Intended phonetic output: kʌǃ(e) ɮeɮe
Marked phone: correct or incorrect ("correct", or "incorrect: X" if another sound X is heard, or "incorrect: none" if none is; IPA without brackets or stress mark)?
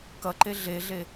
correct